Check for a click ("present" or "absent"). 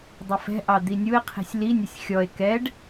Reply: absent